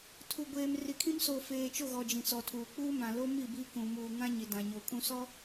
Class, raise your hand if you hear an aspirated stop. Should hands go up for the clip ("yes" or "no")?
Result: yes